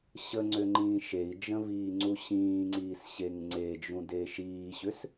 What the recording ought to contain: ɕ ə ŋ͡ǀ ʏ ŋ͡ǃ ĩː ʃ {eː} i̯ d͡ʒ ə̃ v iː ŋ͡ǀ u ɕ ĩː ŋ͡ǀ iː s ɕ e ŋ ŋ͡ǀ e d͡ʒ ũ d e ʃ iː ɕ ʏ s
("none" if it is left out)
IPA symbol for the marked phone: e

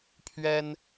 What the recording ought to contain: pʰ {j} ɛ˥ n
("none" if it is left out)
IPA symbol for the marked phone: ɥ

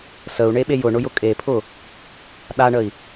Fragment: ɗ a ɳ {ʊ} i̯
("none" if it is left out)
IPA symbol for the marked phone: ə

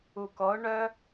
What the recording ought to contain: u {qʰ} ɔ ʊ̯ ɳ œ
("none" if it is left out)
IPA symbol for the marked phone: k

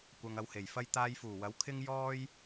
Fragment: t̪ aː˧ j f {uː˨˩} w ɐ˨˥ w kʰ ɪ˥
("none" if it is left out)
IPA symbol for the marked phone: uː˨˩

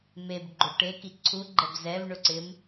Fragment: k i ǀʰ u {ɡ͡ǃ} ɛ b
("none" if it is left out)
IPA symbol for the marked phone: ɡ͡ǃ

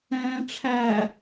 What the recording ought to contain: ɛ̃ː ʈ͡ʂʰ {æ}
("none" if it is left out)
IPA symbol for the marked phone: æ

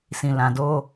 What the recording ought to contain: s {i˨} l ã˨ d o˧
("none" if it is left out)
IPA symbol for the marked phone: ĩ˨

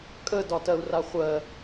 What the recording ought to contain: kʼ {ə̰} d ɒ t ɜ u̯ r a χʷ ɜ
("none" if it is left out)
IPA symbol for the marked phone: ə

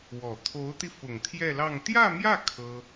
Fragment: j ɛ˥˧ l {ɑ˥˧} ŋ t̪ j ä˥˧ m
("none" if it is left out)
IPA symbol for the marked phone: ɑ˥˧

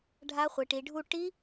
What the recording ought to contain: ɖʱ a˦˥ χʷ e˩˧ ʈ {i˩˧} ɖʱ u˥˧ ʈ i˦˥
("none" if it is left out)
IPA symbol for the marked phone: i˩˧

